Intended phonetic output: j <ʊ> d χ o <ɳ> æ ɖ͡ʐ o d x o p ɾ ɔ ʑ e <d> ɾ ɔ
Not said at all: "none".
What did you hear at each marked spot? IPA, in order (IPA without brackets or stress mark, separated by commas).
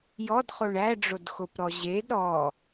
ɔ, ɳ, d